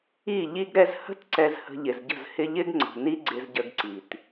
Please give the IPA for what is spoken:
i˦˨ ʎ i˦ ɡ ɾ ɛ˧ z h ə̤˦ t ǀ ɛ˧ z h ə̤˧ ʎ ɪ˨ z ɟ ə̤˦˨ z h ɪ˦ ʎ ɪ˦ ɡ ŋ͡ǀ ə̤˨ n i˦ ɡ͡ǀ ɪ˧ z ɟ ə˧ ɡ ǀ i˨ t

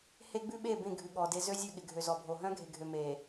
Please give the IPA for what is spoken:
h e˦ ɡ͡b ʉ˦ ɓ e˦˨ b ẽ˦˨ ɡʱ ʉ˨ ɠ ɔ˨ d e˦ z ø˦ zʲ ø˦˨ ɠ ɪ˨ ɡʱ ø˨ z ɔ˨ bʱ o˨ ɦ œ̃˦ ɡʱ e˨ ɡʱ ø˨ m e˨

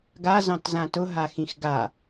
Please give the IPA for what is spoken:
ɡ a z ɑ̃ t z ã t ʊ ɦ a x ĩ x ɡ a

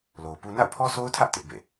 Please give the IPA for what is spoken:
l o˨ ʊ̯ p u˦ n a̰˦˨ ʊ̯ pʰ ɔ˦ s o˦ ʊ̯ tʰ ä˦ ʔ t ɪ˦ ʔ b ḛ˦˨

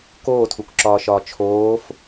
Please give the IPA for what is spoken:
k oː tʰ u k ǁ ɒː ʃ ɒː t͡ʃʰ oː f

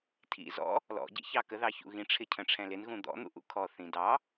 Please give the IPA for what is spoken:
tʰ ḭ z ɔ̰ | l ɔ̰ ɟ ḭ ç ɑ k ə ð ɑ ç ṵ ɣ ĩ ʈ͡ʂʰ ɪ cʰ ə̃ ʈ͡ʂʰ ɛ̃ l ɪ n ɣ ũ d̪ ɔ̰ n̪ ṵ ʔ ṵ kʰ ɔ θ ĩ d ɑ

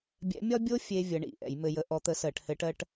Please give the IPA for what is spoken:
bʲ ɛ̰˧˥ mʲ ɒ˥ bʲ o˥ fʲ e˧ vʲ ə˧˥ ɳ ḭ˧˩˧ ʔ ɛ̰˧˩˧ j m ɘ˧ j ə˧ ʔ ɔ˧˥ t̪ ə˧˥ s ɜ˧˩˧ ʈ h ɘ˧˥ ʈ ɜ˥ ʈ

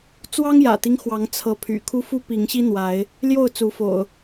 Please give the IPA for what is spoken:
t͡s w ɑ˦ ŋ j ä̰˨˩ t̪ i˦ ŋ x w ɑ˨˦ ŋ t͡sʰ ɤ˨˦ pʰ y̰˨˩ kʰ u˦ f u˦ p i˨˦ ŋ ɕ i˦ n̪ w a˨˦ ɪ̯ | l j o˥˨ ʊ̯ t͡s u˨˦ f o̰˨˩ ʊ̯

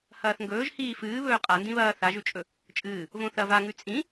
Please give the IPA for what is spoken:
h ɐː θ ŋ ɡ ɵː ʒ h iː f ɨː β ɵː qʼ a n d ĩ β ɐː θ a ʒ ʉ t͡ʃʼ ɵ | t͡ʃʼ ɨː | v õ θ ɐ v a ŋ ʉ t͡sʼ ĩ

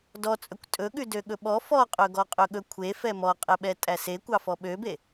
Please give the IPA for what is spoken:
d ɔ t͡sʼ ɵ kʷ tʼ ɵ ɠ ʉ d ø ɠ ɵ ɓ ɔ f ɔ qʼ ɵ ɡ ɔ qʼ ɵ ɠ ɵ kʷʰ e f ɛ m ɔ qʼ ɛ ɓ ɛ tʼ æ s e kʷ ɑ f ɔ ɓ ø b e

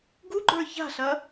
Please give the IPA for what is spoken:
ɡ u ɡ͡ǃ ə˞ ç a̤ ɬ ɐ

